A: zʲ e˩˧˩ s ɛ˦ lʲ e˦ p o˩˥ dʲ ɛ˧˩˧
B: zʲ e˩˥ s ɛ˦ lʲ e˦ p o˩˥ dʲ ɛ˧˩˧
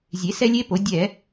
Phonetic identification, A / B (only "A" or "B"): B